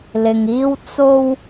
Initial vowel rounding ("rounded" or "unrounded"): unrounded